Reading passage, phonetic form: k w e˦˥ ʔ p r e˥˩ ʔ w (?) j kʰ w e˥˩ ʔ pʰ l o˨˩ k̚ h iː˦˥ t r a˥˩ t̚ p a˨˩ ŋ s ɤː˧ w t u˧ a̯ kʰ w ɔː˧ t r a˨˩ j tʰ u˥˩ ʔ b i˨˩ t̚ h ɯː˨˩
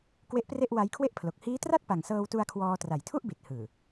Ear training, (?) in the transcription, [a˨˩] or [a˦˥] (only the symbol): a˦˥